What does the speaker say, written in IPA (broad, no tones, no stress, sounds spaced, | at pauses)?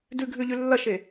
d ʉ ɡʱ ʉ ʎ ʉ lː ɐ ʃ e